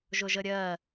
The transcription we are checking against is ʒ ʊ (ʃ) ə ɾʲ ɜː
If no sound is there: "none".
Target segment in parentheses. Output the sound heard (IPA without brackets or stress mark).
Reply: ʒ